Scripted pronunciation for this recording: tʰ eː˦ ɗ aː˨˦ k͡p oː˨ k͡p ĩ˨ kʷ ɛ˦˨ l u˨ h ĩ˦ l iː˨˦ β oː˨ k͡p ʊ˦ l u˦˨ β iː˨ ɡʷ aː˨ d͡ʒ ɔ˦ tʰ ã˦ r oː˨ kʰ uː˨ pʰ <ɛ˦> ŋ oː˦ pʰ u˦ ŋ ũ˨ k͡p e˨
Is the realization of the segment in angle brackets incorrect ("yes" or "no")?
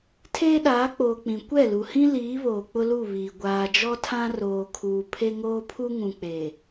yes